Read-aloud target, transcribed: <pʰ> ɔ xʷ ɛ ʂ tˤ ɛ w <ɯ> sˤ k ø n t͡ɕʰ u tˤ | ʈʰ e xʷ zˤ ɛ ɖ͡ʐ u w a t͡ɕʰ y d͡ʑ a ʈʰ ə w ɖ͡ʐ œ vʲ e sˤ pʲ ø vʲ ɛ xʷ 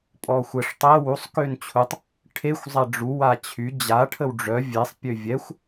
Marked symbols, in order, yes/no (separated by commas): no, no